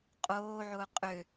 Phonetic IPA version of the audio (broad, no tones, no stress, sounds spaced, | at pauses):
qʼ oː ʕ ʊː qʼ ʏ